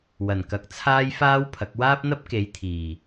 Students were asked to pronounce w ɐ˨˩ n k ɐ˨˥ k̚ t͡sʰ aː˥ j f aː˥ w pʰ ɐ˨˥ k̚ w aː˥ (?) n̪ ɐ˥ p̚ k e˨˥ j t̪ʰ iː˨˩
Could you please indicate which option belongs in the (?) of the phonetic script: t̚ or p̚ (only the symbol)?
p̚